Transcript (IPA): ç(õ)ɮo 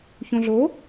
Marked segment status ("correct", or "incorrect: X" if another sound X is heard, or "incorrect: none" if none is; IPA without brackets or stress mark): correct